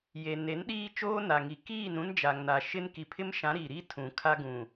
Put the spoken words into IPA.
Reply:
j e˨ n e˨˦ n ɗ iː˦ t͡ʃ oː˦ n a˨ ŋ i˨ k iː˦˨ n ũ˦ n d͡ʒ a˨ ŋ n a˨ ʃ ɪ˦ n k i˨ pʰ ɪ˦ m ʃ ã˨˦ ɾ i˨ ɾ i˦ tʰ ũ˨ kʰ a˦ ɡ ũ˨

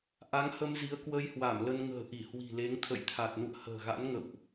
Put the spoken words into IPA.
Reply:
ʔ a˨˦ ŋ h ə˧ m z i˨˦ ə̯ k w ə˧ j h w a˧˩ m l ə˧ n ŋ ə̤ː˨˩ ʔ i˧˩ h w i̤˨˩ l e˨˦ ŋ t̪ʰ ə̰˧˨ j t̪ʰ a˨˩ t̚ n ṵ˧˨ ə̯ h ə̤ː˨˩ ɣ a̰˧˥ n ŋ ə̰˧˨ w ʔ

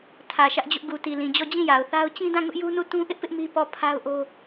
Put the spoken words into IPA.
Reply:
tʰ ä˨ ʃ ä˦ ʔ d͡ʑ ʊ˦ ʔ ɡ u˨ t i˨ l ĩ˨ d͡ʑ ɔ˦˨ d͡ʑ ĩ˦˨ j a˨ ʊ̯ θ a˦ ʊ̯ t͡ɕ ĩ˦ d ã˦˨ ŋ ʊ˦ ʔ j u˦ n u˦˨ t ũ˦ ʔ ɪ˦ ʔ p ɪ˦ ʔ m i˦ p ɔ˦˨ pʰ a˦ ʊ̯ ʔ o˦

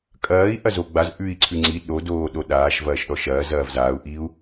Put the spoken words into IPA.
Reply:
kʼ ɐː i̯ ʔ ɐ z o ɡ͡b a z ʔ ʉ i̯ ǀʰ ʉ ŋ͡ǀ i ɗ o d oː ɗ o ɗ aː ʃ v ɐː ʃ ɗ ɔ ʃ ɐː z ɐː v z aː u̯ ʔ i u̯

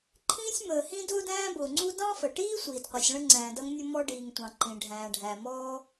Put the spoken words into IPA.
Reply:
ǃʰ ĩː˥ sʲ m əː˩ h ĩ˥ d ʊː˥ d æ̃ː˥ b ʊː˩ ŋ͡ǀ u˥ d ɑ̃˥ f ə˩ ʈ iː˥ sʷ iː˩ d qʷ i˩ sʲ ɭ ə̃˥ ŋ͡ǀ æ̃ː˩ d ʌ˥ ŋ nʲ ʊ˥ m ɔ˥ ɖ iː˩ ŋ tʷ ɑ̃˩ ǃ ĩ˩ ɖʱ æ̃ː˩ ɖʱ æ˩ m ɔː˥

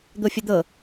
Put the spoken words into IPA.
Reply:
d̪ o fʲ ə d̪ ɤ

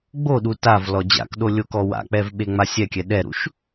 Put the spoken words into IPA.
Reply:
ɡ͡b o ɗ u t a v l ɔ d͡ʑ a̰ k ɗ o lʲ o k ɔ w a̰ k͡p ɛ v ɓ e ŋ͡m a sʲ ɛ kʲ ɛ ɗ ɛ ɾ ṵ ʃ

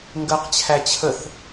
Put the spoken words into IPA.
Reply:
ŋ ɡ ɜ q t͡ɕʰ æ t͡ɕʰ ə θ

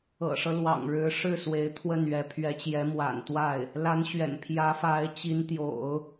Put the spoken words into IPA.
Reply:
ɤ̰˨˩ ʂ ɤ˦ l w ɑ̰˨˩ ŋ ɻ ɻ̩˧˥ ʂ ɻ̩˥˩ s w e˧˥ ɪ̯ t̪ʰ w ə˥˩ n ɥ ɛ˧˥ pʰ ɥ ɛ˧˥ t͡ɕ j ɛ˧˥ m w a̰˨˩ n t̪ w a˥˩ ɪ̯ | l a˧˥ n ɕ ɥ ɛ̰˨˩ n pʰ j ä˧˥ f a˧˥ ɪ̯ t͡ɕ i˧˥ n t̪ j o̰˨˩˦ ʊ̯

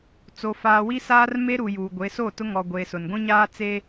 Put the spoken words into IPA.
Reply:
t͡s o˨ f aː˨ w i˦ s aː˦ r m e˦ ɾ u˨ j uː˨ ɡʷ e˨˦ s o˦˨ t ʊ˦ ŋ ɔ˨ ɡʷ eː˨ s ʊ˨ n ɡʷ ĩ˦ ɲ aː˦ t͡s e˦

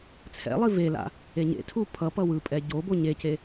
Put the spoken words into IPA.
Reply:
t͡sʰ ɛ̰ lˠ i v e l a̰ | e ɲ ḛ tʰ u pʰ ʌ p ʌ w ɯ pʼ ɛ ɟ o b o ɲ e c e

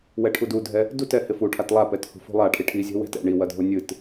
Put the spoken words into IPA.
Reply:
w ɛ ʈʰ u d u dʱ ɛ | d u t ɛ h ɪ f u ʈʰ a t lˠ a p ɛ t h ṳ f ṳ lˠ a ʈʰ i ʈʰ i zʲ ɛ̤ w ɛ̤ t ɛ̰ ɳ i w ɐ dʱ o nʲ ɨ t

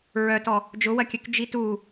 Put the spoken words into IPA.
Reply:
ɹ œ t ɔ | d͡ʒ ʊ w ɐ kʲ œ k d͡ʒ i t u

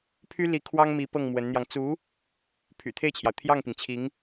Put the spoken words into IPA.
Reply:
pʰ y˥ l i˧˥ kʰ w ɑ˥ ŋ m i˧˥ p ɤ˥˩ ŋ m w ə˧˥ n n̪ j ɑ˧ ŋ t͡s u˧˥ | pʰ y̰˨˩ t̪ʰ e˥˩ ɪ̯ t͡ɕʰ j ɑ˩ ʊ̯ t̪ʰ j ɑ˥˩ ŋ p i˩ ŋ t͡ɕʰ i˧˥ ŋ

